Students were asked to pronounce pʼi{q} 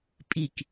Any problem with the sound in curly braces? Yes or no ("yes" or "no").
yes